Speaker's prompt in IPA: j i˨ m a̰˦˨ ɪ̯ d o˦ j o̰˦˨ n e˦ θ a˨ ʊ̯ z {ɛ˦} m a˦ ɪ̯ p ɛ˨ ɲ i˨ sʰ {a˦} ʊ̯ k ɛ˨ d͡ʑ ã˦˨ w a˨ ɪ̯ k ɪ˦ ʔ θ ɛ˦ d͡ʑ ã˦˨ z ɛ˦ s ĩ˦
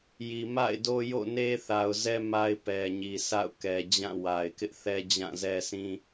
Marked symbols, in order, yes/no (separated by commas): yes, no